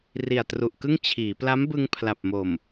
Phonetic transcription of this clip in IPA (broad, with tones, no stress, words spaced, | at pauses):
ri˨˩a̯tru˨˩ʔkɯ˥˩ŋ t͡ɕʰiː˩˦ pla˦˥mbɯ˧ŋ pʰla˨˩p̚mo˨˩m